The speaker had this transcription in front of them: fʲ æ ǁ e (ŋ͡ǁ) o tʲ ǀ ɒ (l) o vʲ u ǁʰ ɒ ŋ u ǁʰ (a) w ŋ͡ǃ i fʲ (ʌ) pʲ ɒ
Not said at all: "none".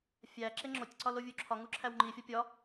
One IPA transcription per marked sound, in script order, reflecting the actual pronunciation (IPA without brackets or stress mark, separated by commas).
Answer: ŋ͡ǁ, l, æ, ɒ